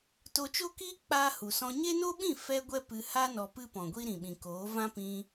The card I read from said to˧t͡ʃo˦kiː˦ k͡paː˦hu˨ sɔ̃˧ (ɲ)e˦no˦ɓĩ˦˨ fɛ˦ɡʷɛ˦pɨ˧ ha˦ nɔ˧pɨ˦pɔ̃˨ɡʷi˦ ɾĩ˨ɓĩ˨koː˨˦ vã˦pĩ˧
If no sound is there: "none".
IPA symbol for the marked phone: ɲ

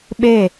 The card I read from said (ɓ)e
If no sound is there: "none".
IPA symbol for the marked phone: ɓ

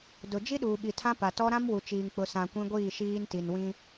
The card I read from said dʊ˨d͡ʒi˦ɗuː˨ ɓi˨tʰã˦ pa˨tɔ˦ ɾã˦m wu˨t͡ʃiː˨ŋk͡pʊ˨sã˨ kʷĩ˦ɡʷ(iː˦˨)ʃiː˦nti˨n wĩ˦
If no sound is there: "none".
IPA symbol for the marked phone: iː˦˨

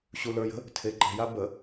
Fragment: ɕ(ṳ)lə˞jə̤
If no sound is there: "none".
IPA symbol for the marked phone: u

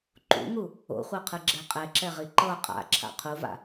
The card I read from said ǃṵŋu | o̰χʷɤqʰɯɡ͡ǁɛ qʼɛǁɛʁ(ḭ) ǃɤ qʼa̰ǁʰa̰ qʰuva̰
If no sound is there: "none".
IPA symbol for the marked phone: i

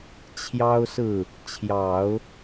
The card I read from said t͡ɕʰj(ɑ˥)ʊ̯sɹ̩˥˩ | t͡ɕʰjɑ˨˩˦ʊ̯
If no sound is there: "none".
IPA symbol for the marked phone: ɑ˥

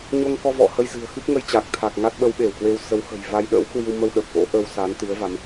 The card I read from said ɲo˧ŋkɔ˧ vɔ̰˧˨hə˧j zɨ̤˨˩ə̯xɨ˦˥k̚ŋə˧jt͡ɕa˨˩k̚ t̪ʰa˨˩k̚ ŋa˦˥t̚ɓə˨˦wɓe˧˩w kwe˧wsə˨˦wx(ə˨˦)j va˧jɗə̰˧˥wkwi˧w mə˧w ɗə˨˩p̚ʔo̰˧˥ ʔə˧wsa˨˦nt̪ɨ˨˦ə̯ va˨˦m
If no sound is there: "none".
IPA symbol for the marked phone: ə̤˨˩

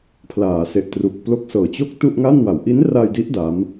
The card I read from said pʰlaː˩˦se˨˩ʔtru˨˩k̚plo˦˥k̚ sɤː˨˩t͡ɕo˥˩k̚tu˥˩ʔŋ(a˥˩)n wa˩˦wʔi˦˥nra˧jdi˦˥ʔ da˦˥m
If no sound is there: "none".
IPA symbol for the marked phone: a˥˩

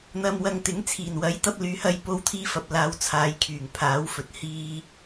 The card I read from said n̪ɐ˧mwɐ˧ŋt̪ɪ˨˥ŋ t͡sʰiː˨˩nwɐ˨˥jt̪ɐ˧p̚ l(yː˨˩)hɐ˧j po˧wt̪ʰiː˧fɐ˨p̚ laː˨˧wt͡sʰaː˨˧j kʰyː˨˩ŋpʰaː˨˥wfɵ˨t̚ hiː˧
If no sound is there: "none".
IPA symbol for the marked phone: yː˨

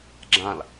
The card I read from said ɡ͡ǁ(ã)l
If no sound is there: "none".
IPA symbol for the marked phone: ã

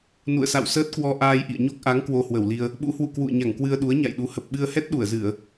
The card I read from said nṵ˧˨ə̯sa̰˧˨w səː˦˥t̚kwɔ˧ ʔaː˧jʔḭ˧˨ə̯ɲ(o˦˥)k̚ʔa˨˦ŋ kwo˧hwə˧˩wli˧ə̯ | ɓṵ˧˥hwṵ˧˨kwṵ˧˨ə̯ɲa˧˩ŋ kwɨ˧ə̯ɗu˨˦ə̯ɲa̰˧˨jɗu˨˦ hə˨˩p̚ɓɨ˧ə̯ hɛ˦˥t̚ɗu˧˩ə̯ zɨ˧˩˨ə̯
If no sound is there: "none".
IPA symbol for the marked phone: o˦˥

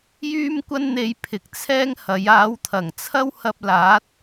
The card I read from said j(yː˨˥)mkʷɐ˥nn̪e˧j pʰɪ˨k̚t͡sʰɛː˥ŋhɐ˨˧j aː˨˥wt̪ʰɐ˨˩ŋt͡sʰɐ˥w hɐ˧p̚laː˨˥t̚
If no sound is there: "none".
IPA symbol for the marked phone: yː˥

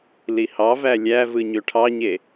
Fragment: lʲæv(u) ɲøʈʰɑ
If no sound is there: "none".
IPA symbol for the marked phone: ɯ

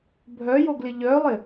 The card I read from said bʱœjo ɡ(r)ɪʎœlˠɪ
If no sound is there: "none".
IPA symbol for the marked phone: l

